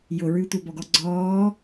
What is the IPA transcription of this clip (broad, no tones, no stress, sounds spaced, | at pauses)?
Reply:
j ʊ ɹ ʉ tʷ a b ɔ ɡ ɔ ɡ͡ǀ ɔː